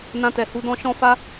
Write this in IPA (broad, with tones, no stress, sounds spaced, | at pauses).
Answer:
n ã˧ t ɛ˨ h u˨˦ d ɔ̃˧ ʃ ɔ̃˦ f a˦